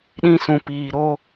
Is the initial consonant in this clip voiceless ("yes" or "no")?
no